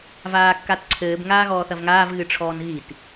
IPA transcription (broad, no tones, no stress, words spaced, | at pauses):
vaːkːatǀʰɘːb ŋaːɣɔːθɐvŋaːv ɣɨʈ͡ʂʰɔːnɣit